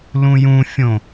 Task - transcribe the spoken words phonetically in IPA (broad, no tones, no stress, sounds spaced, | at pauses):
l ũ j ũ fʲ õ